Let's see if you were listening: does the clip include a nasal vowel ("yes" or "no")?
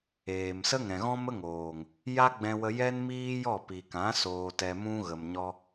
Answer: yes